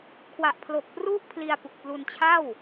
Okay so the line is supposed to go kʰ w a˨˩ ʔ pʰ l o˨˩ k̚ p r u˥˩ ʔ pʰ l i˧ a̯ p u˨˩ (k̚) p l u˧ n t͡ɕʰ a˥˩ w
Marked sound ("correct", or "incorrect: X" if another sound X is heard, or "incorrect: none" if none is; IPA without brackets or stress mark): correct